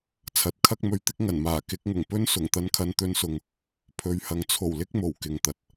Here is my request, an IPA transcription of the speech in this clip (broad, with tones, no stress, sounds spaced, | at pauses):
t͡sʰ ɐ˨˥ t̚ kʰ ɐ˥ k̚ m ɵ˧ ɥ t̪ ɪ˥ k̚ ŋ ɐ˨˩ n m aː˨˩ k ɪ˨˥ k̚ ŋ ʊ˨˩ ŋ p ɵ˥ n s ʊ˨˩ ŋ t̪ ɐ˧ n kʰ ɐ˧ n t̪ ɵ˧ n s ʊ˨ ŋ | pʰ ɵ˨˧ ɥ h ɐ˨ ŋ t͡sʰ o˨˩ w l ɪ˥ k̚ m o˨˩ w k ɪ˨ ŋ t̪ ɐ˨ t̚